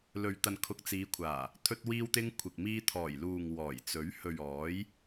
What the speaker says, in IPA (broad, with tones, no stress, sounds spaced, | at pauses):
l ɵ˨ ɥ t̪ ɐ˨ n kʰ ʊ˨ k̚ t͡s iː˨˧ kʷʰ aː˨˩ | t̪ʰ ɵ˧ t̚ w iː˧ w t̪ ɪ˧ ŋ kʷʰ ɪ˨ k̚ m iː˧ t̪ʰ ɔː˨˩ j l uː˨ ŋ w ɔː˨˩ j t͡s ɵ˨˥ ɥ h ɵ˨ ɥ ɔː˨˥ j